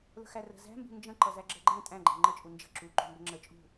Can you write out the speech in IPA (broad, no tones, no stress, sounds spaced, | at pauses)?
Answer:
l ə̤ x æ r ə̤ z æ̤ m b ṳ n d͡ʒ ə̃ ǃ ʌ z æ ɡ͡ǁ ɜ ɡ͡ǃ æ̃ tʼ æ̃ ɡ͡ǃ æ̃ ŋ͡ǃ ə t͡ʃʼ u n d͡ʒ ə̤ ǁ u ǃ ṳ m b ə ŋ͡ǁ ə t͡ʃʼ ṳ